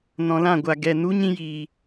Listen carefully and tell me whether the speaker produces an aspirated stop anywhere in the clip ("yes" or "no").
no